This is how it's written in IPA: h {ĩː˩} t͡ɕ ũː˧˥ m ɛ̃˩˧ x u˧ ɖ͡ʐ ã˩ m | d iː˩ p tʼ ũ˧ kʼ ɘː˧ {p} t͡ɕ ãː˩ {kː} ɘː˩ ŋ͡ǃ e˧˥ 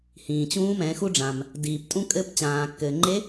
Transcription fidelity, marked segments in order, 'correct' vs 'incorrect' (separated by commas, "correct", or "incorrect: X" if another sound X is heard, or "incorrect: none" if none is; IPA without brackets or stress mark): correct, correct, correct